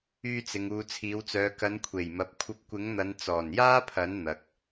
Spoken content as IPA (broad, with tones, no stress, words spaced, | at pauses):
yː˧t͡sɪ˨ŋ uː˨t͡sʰiː˨˧wt͡sœː˨˧ kɐ˨˧nkʷʰe˨˩jmɐ˨p̚ kʷʰɐ˧p̚kʷɪ˨˥ŋn̪ɐ˨˧n t͡sɔː˨˩njaː˥pʰɐ˨˥n n̪ɐ˨k̚